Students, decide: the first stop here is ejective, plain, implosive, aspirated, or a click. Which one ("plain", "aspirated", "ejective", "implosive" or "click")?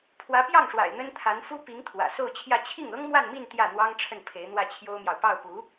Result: aspirated